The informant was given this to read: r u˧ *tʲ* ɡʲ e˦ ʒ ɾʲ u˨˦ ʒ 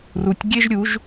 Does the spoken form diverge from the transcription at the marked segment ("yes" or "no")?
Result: no